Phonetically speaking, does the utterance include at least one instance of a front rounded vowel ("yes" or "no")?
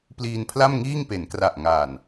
no